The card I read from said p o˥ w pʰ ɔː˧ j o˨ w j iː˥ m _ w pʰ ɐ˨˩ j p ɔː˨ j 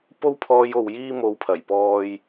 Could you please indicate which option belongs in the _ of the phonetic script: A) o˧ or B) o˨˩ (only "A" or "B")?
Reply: A